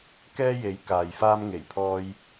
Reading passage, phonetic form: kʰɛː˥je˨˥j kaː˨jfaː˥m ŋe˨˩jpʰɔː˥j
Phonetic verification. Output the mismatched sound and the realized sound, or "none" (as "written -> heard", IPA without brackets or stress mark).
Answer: kʰ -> k